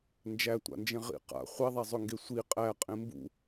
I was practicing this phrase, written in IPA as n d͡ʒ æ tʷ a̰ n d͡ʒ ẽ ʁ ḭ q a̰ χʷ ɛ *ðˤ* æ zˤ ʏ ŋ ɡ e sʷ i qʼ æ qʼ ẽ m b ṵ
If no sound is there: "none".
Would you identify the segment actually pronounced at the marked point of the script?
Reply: ðˤ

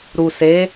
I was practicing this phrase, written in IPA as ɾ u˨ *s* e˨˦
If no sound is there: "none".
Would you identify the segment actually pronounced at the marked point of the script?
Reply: s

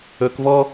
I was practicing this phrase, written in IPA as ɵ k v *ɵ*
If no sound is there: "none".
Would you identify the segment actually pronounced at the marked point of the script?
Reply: ɔ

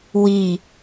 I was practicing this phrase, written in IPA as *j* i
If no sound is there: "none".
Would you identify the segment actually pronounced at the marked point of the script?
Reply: w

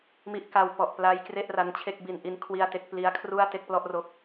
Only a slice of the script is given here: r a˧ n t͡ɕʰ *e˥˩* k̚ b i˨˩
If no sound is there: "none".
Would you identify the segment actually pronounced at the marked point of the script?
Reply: e˥˩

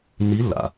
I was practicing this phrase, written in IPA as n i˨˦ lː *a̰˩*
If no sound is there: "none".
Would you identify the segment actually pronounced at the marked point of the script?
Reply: a̰˩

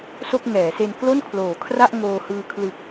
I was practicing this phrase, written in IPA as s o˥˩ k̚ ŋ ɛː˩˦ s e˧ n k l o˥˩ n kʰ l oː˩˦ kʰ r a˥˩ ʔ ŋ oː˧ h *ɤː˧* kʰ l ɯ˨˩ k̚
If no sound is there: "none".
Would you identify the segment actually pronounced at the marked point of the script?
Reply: ɯː˧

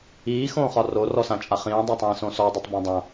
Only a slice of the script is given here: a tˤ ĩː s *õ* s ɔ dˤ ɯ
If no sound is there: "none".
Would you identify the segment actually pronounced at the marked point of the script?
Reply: õ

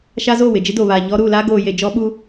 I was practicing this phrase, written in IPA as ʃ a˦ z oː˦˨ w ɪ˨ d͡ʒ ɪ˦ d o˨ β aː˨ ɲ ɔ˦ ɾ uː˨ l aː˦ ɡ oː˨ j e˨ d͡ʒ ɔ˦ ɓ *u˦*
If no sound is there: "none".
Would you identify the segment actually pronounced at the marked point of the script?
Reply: u˦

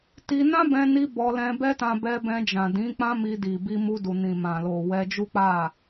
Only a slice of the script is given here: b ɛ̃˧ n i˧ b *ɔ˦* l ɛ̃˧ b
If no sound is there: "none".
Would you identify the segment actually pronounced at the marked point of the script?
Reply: ɔ˧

